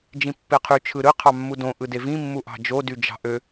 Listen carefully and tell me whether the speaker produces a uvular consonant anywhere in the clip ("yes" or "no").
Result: yes